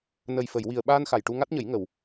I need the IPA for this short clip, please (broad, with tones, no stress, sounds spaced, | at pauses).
n ə˨˩ j f ə˨˩˨ j w i˨˩ ə̯ ɓ aː˧ n x a˨˩ j ʈ u˧ ŋ a˦˥ t̚ ɲ ə˨˩˦ j ŋ ə˨˩˨ w